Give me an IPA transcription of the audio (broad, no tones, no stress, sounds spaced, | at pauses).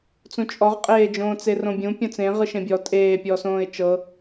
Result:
t͡s ũ t͡ʃʼ ɔ ʁ qʼ eː d͡ʒ õː t͡s e r õ bʲ ũ pʲ õ t͡s ẽ ʁ ɯ ʃ ẽ bʲ ɔ tʼ eː pʲ ɔː s õː ɪ̯ t͡ʃ ɤ